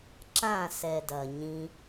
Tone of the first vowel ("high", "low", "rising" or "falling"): falling